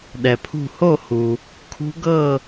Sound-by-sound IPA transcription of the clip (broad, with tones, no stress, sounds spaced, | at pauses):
ɗ ɛ˨ pʰ ṳ˥˧ h o˥˧ h u˨ | kʰ ṳ˦˥ ɡ ɤ˥˧